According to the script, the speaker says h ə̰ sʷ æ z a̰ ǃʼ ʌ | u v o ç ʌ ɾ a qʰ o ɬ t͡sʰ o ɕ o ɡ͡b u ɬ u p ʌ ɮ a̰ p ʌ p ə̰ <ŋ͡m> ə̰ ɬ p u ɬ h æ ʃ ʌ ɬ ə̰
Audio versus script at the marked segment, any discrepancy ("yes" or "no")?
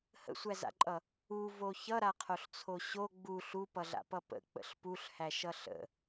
yes